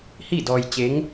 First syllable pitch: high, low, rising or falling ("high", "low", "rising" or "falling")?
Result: falling